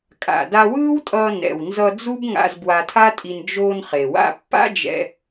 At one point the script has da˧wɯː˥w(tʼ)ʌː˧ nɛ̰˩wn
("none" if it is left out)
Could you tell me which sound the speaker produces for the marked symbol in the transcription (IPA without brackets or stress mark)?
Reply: tʼ